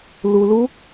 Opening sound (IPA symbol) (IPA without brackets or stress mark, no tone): l